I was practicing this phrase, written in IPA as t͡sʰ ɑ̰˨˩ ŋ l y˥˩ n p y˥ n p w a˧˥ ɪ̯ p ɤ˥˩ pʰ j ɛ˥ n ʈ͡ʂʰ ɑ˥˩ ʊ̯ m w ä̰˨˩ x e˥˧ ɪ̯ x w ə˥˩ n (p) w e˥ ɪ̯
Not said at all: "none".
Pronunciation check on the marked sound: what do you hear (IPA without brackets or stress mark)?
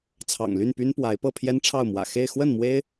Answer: m